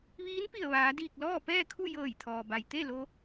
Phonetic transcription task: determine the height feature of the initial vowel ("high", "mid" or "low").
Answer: high